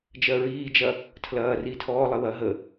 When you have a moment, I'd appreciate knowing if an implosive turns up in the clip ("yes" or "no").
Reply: no